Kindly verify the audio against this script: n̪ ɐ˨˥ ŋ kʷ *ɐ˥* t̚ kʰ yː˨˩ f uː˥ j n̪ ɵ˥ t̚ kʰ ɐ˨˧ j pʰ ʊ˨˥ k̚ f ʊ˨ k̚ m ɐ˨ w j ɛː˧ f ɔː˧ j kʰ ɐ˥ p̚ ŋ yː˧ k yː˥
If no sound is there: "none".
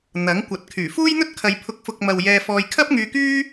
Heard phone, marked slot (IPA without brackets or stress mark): ɐ˨